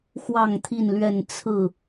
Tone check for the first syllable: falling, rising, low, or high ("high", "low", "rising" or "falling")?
falling